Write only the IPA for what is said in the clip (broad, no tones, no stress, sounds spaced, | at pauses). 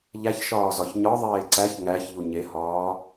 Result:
ʎ æ ç ʃ ɒː z ɒ ç ɲ ɒ ðˤ eː ǀ æ ç ŋ æ ç ʎ u ɲ e h ɒː